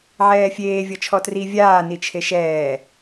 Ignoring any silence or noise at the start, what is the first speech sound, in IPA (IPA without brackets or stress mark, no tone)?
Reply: ʕ